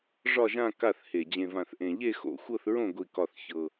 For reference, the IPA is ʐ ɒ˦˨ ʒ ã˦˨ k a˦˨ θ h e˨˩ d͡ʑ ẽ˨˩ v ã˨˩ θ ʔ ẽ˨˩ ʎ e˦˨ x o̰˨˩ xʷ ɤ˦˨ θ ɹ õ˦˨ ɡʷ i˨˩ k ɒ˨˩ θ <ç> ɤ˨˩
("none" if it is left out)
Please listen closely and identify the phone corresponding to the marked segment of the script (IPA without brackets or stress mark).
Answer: ç